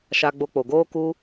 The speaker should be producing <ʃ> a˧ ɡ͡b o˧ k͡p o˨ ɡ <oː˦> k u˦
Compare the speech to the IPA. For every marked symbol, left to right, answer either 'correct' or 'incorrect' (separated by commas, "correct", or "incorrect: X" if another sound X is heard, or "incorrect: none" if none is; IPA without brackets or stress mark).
correct, correct